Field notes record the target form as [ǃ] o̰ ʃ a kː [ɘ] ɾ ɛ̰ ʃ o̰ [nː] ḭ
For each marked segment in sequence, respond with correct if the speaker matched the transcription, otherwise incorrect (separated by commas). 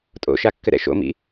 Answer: incorrect, correct, incorrect